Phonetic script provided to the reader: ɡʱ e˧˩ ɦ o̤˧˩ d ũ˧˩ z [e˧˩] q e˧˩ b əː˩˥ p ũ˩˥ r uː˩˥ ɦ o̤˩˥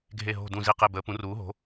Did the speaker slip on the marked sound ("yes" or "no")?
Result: yes